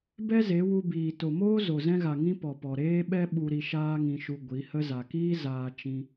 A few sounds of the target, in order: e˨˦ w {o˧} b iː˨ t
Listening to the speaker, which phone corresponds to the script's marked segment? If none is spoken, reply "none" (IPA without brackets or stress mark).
u˧